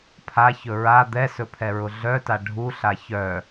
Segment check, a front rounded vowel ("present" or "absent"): present